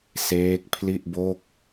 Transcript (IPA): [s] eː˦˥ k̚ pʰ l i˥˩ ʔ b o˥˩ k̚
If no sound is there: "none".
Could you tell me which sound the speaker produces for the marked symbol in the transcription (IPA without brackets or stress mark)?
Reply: s